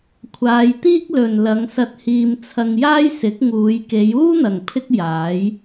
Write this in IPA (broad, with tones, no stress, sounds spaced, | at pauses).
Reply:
kʷʰ aː˨˧ j t̪ iː˥ k̚ l ɵ˨ n l ɐ˨˧ ŋ s ɐ˧ t̚ h iː˧ m t͡sʰ ɐ˧ ŋ j aː˥ j s ɪ˨˥ k̚ ŋ uː˨˧ j k e˨˧ j uː˥ n̪ ɐ˨ ŋ pʰ ɪ˥ k̚ j aː˨˥ j